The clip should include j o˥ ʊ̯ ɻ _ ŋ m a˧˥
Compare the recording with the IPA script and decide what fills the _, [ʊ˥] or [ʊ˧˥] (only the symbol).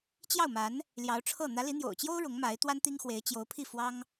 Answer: ʊ˧˥